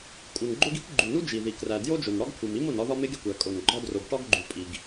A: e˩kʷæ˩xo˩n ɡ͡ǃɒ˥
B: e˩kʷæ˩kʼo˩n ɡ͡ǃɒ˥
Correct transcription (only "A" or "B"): B